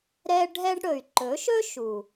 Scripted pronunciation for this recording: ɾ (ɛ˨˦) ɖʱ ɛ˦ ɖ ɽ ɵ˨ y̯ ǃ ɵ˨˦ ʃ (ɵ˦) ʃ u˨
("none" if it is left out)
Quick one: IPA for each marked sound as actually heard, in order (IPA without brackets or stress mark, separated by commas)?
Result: ɛ˦, ɵ˦